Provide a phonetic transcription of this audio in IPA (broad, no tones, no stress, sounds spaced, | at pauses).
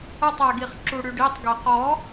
ə tˤ ɛ ɡ i χ ǁ u ɽ y ɖ i tˤ ɡ ɛ q ɔ